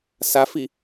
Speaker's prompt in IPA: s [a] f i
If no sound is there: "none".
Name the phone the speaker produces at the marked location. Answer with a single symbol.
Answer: a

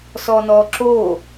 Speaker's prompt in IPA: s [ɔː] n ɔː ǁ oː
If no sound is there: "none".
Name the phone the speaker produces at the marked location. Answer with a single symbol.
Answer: ɔː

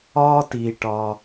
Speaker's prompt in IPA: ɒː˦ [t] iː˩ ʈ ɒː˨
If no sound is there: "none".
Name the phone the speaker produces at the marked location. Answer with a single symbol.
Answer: t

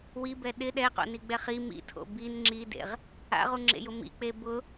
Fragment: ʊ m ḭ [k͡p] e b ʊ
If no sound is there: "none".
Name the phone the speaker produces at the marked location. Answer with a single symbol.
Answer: k͡p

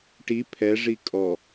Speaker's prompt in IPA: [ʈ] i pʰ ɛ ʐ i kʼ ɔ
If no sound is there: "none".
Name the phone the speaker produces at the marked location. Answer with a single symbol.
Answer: ʈ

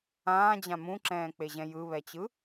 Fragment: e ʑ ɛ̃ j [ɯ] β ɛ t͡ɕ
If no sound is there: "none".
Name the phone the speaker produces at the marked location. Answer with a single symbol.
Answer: ɯ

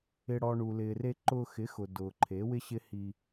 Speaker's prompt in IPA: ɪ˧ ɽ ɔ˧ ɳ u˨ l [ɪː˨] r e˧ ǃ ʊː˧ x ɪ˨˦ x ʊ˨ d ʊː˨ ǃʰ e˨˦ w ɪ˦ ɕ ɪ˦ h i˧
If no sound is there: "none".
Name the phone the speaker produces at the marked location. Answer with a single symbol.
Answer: ɪː˨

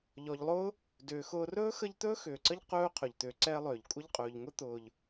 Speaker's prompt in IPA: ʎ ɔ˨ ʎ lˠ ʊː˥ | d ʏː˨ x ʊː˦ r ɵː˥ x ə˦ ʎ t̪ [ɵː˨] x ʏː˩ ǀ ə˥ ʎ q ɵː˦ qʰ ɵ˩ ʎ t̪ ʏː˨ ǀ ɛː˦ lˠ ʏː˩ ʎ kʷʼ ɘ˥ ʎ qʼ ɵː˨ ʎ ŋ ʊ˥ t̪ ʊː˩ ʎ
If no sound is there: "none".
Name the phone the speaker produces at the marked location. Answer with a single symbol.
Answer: ɵː˥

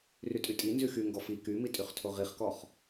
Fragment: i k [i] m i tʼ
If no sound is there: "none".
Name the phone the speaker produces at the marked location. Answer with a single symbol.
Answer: y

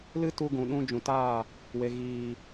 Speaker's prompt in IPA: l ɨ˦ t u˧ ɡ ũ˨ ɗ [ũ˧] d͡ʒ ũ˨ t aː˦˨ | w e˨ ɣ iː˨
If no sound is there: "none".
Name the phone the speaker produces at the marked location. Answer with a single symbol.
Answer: ũ˧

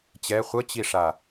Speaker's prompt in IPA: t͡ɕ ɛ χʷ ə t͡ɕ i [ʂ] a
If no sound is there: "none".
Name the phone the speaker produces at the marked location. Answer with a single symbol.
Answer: ʂ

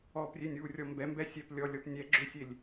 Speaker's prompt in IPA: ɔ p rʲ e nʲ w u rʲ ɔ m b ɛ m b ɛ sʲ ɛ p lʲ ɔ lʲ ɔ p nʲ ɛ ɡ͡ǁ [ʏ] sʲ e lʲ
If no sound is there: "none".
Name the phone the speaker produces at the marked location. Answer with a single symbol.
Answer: ʏ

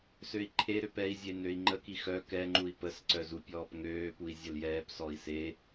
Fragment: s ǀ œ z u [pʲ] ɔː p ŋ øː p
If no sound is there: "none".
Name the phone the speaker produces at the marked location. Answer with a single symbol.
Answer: pʲ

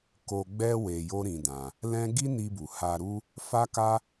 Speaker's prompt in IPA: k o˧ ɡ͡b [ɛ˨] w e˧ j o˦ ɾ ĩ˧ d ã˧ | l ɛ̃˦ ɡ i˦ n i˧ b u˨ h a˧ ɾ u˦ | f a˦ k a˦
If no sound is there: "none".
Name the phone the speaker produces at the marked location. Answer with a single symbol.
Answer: ɛ˦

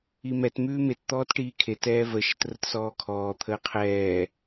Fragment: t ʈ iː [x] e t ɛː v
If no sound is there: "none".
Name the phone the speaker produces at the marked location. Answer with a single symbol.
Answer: kʰ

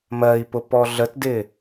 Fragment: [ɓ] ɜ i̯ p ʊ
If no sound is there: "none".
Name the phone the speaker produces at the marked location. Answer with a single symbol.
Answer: m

